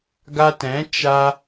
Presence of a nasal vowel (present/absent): present